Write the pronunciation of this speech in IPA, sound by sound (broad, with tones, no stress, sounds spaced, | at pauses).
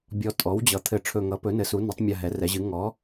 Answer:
bʲ ɔ˧˩ tʼ ɔ˩˥ w d͡ʑ ʌ˩˥ t̪ʰ ɘ˧˩ ʈ͡ʂʰ ɵ˧˩ ŋ ʌ˩˥ p ɵ˩˥ n ɘ˩˥ s u˩˥ n ɵ˩˥ tˤ mʲ a˧˩ ɦ ɛ˩˥ r ɛ˩˥ ʑ ɨ˩˥ ŋ ɔ˩˥